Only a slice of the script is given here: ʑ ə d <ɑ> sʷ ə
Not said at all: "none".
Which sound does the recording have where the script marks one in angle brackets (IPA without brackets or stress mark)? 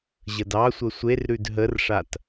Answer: ɑ